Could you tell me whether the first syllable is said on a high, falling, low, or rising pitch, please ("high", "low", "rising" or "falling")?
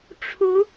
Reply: rising